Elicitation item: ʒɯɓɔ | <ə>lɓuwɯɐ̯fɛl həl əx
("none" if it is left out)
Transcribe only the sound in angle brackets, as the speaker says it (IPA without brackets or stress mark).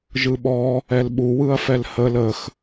ɛ